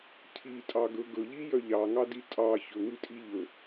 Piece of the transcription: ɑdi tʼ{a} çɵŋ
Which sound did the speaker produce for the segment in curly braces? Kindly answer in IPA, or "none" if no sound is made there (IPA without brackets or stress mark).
ɑ